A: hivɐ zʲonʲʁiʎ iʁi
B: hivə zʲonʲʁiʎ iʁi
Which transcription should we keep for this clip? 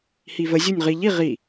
B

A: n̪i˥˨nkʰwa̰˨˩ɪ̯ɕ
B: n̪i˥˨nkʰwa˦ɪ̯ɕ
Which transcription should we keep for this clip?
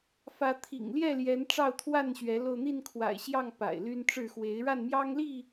A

